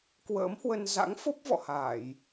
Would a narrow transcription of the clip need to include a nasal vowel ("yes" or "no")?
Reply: no